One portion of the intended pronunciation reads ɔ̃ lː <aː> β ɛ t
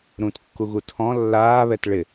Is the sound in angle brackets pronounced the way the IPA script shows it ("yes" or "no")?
yes